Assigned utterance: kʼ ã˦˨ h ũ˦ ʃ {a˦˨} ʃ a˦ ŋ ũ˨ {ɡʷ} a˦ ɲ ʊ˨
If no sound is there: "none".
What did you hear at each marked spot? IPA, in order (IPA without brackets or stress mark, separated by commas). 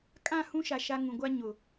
a˨, ɡʷ